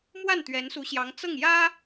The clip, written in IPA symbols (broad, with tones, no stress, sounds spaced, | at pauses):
m w a˥˩ n t̪ ɥ ɛ˧˥ n s u˧˥ ɕ j ɑ˧˥ ŋ t͡s ɤ˥˩ ŋ j ä˥